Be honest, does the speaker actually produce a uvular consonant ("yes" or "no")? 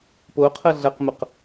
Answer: yes